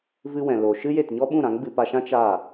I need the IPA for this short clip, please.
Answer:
v ɨ˧ w ɛ̃˨ l o˨ ʃ ɨ˦ j e˦˨ t ɲ ɔ˦ ɓ ũ˦˨ ɾ ã˨˦ ŋ ɡ͡b ɨ˧ p a˧ ʃ ã˦ t͡ʃ aː˦˨

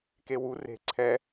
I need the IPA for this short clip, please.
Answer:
k e w u r e̤ ǀʰ ɛ

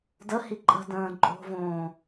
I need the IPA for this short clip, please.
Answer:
d ə h i ǃʼ ə̤ d ə̃ː ǃʼ o̤ v õː

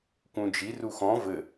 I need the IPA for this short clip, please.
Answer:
k ũ d͡ʒ i r u x ɔ̃ v ɘ

